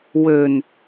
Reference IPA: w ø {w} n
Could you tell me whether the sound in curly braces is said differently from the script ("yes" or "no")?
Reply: yes